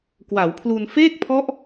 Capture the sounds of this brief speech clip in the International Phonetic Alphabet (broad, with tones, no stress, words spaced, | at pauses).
kwa˩˦wpʰlu˧n feː˥˩k̚pʰɔ˦˥ʔ